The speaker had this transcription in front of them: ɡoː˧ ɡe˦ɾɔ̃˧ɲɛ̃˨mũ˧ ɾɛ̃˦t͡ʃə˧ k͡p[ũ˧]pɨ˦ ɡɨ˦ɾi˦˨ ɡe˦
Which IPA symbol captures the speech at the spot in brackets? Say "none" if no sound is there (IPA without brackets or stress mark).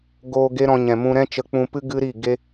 ũ˧